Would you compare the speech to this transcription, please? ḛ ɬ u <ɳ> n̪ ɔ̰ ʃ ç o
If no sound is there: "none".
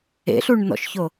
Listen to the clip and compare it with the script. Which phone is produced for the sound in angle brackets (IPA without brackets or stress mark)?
ɳ